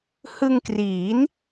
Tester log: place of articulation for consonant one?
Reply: glottal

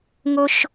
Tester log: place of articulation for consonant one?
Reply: velar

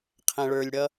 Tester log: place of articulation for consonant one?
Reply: uvular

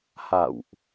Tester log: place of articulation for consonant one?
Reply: glottal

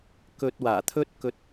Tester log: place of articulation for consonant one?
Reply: velar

